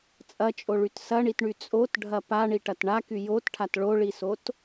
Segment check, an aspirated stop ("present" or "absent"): present